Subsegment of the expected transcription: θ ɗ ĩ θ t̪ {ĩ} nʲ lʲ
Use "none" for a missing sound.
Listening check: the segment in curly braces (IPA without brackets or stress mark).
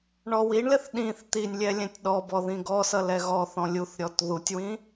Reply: i